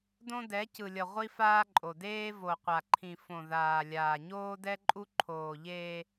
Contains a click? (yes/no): yes